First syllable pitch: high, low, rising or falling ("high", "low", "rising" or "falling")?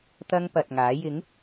high